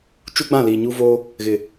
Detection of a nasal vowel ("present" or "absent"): present